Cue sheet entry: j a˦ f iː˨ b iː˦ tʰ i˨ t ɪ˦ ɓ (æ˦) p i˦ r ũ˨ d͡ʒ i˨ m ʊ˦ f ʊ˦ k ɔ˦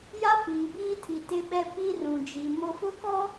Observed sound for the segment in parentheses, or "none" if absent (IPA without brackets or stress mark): ɛ˦